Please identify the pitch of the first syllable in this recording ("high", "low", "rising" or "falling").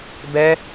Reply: high